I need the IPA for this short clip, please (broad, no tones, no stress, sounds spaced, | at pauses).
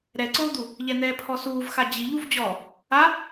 ɾ ɛ ǀ oː d̪ u | ʎ ɛ n̪ ɛː pʰ ɔ s uː v x a d͡ʑ i ʎ u v d͡ʑ ɔ | a